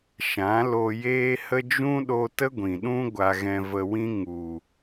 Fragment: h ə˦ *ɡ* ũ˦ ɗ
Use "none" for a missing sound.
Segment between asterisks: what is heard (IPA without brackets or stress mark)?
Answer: d͡ʒ